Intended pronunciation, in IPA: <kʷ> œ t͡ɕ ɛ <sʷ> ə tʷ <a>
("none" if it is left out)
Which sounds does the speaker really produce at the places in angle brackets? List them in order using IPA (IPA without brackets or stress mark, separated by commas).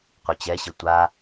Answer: qʷ, ɕ, a